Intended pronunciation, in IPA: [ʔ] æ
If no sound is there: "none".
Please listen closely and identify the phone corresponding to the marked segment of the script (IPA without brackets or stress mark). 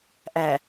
ʔ